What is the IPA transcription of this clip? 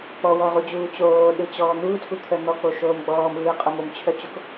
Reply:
k͡pɔwɔʁud͡ʑuː t͡ɕoːɗɯt͡ɕɔː n̪uːtʰut̪ʰœ n̪ɔk͡poʃoːm ɡ͡bɔːmɯːqʼom omt͡ɕʰœt͡ɕok

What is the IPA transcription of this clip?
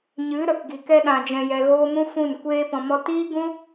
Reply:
ɲɨ˨˦ɾə˨k ɡi˨kɛ˧ ɗã˧d͡ʒɛ̃˧jɛ˧ɣoː˦ mũ˦fũ˦˨nkʷeː˦pɔ̃˧ mɔ˧tiː˦ɡũ˦

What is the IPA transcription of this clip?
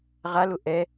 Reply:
ʁalʊ ʔɛ

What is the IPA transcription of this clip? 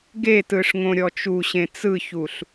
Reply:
ɡetɯʂŋõɾʲɔ t͡ʃuɕẽ t͡sɯçuɬ

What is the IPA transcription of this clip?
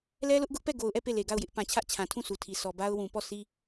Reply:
lɛ˦lʊ˦ʔɡʊ˦ʔpɛ˦˨ ɡo˨ʊ̯ʔɛ˦˨ pe˦˨le˨ɡa˦˨ʊ̯jɪ˦ʔ pã˨t͡ɕʰä˦ʔt͡ɕʰã˨tʰũ˦˨ sʰu˨tʰi˨ sʰɔ˨ba˦ʊ̯ wũ˨ pɔ˦˨ sʰi˦

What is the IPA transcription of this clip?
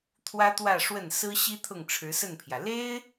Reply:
t̪ʰwä˥t̪wä˥˧ ʂwə˥˩n sɹ̩˥ ɕi˥ t̪ʰʊ˥˩ŋʈ͡ʂʰɻ̩˧˥sə˥˩npʰjä˩ le˥ɪ̯

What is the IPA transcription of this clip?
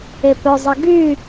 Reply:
epœzˤə ɡy

